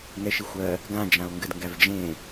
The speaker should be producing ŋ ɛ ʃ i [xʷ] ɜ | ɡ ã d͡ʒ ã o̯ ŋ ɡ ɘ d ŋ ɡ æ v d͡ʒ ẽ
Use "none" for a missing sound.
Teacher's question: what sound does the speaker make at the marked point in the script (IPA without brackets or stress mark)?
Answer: xʷ